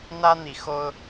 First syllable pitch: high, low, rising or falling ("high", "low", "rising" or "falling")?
high